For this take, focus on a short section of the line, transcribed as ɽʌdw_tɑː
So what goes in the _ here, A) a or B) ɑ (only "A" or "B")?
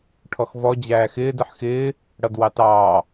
B